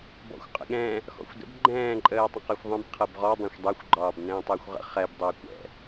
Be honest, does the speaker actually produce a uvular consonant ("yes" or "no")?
yes